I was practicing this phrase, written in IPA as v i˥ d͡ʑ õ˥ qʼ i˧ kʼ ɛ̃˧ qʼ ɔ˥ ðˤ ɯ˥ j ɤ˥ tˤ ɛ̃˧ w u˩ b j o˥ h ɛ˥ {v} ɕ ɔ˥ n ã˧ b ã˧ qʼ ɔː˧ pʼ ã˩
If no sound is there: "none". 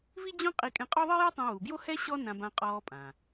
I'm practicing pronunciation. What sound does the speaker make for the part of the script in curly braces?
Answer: none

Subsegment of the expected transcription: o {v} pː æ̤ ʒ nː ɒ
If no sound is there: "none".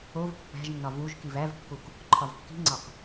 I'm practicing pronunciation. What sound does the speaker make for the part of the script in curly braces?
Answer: v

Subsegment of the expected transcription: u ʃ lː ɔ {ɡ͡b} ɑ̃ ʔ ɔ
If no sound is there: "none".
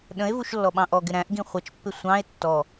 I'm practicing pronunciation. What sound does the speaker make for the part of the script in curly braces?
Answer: ɓ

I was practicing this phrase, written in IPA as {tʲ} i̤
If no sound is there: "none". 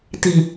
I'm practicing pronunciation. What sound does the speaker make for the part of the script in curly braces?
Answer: t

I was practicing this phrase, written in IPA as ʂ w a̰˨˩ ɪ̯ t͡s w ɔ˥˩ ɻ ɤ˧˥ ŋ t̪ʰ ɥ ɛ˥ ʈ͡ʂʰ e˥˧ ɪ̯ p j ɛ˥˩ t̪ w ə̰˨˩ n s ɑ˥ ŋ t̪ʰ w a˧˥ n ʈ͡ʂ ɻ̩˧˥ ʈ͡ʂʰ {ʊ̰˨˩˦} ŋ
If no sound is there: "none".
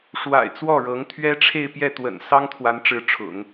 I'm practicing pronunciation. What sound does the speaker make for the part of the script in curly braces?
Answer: ʊ̰˨˩˦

